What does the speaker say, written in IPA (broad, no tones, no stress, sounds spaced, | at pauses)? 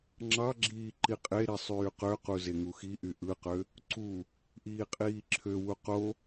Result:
ŋ͡ǁ ɑ ɡ͡ǁ iː ǃ i qʼ e ɾ i sˤ yː q ø q u z e ŋ u x i ʔ y ʔ ɯ q ø | ǀ u | ʔ iː qʼ iː ǁʰ ø w u q o